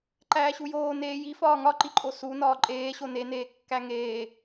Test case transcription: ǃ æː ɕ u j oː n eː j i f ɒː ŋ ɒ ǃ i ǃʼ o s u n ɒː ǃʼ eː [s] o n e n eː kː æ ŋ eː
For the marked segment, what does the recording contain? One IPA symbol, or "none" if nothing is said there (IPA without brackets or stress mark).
ɕ